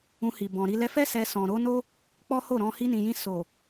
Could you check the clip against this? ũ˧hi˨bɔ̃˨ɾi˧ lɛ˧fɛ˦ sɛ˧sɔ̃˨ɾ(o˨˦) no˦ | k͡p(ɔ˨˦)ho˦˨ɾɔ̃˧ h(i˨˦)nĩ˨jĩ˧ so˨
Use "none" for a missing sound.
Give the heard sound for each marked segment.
o˨˦, ɔ˦, i˧

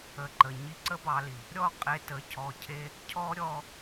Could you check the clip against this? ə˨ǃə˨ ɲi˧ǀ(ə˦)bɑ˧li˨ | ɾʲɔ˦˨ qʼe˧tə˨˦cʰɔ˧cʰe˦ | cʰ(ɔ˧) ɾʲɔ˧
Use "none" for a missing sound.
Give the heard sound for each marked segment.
ə˦, ɔ˦

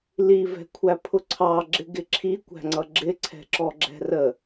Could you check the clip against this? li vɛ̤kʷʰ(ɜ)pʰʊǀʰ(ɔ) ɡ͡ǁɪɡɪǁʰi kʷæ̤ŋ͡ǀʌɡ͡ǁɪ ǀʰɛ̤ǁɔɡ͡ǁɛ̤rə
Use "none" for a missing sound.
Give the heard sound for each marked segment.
æ, ɑ

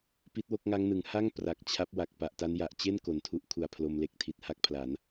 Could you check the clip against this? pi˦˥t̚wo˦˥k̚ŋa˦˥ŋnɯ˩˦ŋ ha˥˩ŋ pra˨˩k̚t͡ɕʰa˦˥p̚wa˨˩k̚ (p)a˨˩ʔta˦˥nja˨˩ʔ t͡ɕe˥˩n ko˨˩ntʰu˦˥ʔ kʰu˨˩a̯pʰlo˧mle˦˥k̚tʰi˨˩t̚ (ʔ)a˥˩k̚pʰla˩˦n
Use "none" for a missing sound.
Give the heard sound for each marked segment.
p, h

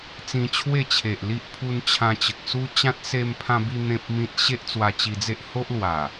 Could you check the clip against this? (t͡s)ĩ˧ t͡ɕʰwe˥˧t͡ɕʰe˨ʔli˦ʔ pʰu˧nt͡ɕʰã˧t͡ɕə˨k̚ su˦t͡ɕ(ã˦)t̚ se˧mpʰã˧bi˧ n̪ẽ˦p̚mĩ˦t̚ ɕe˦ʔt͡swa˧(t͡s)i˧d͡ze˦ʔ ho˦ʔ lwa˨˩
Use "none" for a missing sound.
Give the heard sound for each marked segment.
t͡s, ã˦, t͡ɕ

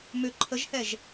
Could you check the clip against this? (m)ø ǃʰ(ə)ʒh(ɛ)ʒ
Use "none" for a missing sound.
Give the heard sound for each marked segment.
m, ə, ɛ

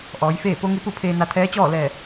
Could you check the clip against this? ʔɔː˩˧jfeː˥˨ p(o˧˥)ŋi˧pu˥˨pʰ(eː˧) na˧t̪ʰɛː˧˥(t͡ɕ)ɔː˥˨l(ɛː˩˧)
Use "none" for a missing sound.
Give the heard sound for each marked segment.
o˧˥, eː˧, t͡ɕ, ɛː˧˩

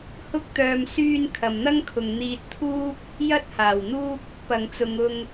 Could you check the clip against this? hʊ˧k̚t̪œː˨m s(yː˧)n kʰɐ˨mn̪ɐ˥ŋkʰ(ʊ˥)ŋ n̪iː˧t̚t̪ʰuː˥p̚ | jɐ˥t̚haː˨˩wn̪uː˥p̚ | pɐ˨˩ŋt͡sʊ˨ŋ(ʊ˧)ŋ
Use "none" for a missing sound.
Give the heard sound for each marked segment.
yː˧, ʊ˨, ʊ˧

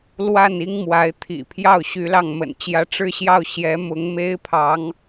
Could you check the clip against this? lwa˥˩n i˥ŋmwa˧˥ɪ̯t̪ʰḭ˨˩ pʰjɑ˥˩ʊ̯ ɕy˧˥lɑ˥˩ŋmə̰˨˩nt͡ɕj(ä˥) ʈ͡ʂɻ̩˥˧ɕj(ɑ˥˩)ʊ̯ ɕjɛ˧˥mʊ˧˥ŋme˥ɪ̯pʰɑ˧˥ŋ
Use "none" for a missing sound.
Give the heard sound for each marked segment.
ä˥, ɑ˥˩

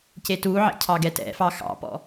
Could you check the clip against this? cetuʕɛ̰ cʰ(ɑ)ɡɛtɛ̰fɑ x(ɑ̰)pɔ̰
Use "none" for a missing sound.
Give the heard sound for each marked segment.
ɑ, ɑ̰

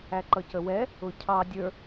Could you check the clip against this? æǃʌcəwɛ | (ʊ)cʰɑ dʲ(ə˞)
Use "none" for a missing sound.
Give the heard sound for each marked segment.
ʊ, ə˞

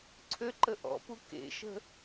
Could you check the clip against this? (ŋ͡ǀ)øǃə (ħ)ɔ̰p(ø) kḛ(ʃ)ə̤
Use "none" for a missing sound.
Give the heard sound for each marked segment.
ǀʰ, ʔ, u, ʃ

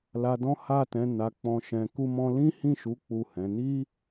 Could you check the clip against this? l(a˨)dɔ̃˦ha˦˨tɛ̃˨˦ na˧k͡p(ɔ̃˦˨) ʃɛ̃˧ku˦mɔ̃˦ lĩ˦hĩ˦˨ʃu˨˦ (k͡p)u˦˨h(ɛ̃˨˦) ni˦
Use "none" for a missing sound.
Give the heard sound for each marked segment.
a˧, ɔ̃˧, k͡p, ɛ̃˨˦

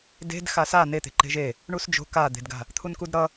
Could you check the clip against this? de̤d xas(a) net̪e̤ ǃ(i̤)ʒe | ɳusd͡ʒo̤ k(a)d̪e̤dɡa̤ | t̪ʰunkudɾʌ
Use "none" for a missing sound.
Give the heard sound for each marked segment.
a, e̤, a

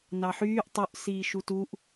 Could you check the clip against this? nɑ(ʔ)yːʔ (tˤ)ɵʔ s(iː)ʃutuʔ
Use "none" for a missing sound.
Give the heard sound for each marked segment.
ħ, tˤ, iː

